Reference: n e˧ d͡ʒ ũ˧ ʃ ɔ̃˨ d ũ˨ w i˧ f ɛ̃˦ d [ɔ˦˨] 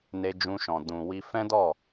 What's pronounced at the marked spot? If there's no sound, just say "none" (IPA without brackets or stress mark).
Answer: ɔ˦˨